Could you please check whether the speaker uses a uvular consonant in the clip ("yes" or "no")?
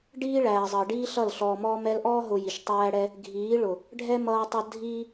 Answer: no